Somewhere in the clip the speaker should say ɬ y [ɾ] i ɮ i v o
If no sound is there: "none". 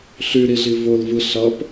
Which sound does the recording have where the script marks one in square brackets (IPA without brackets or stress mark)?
ɾ